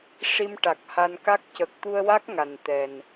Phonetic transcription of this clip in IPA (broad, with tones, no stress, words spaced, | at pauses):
ʂi˧mʈa˨˩k̚ ha˧nka˦˥k̚ cə˨˩k̚t̪u˧ə̯wa˦˥k̚ ŋa˨˩nt̪ɛ˨˩n